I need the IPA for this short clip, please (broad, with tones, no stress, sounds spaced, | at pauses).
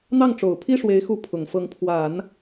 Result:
n̪ ɑ˥˩ ŋ ʈ͡ʂ o˨˩ ʊ̯ pʰ i˥ ʂ w e˧˥ ɪ̯ x u˧˥ pʰ ʊ˨˩ ŋ f ɤ˧˥ ŋ pʰ w a˨˩˦ n